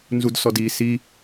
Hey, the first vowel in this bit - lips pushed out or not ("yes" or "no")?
yes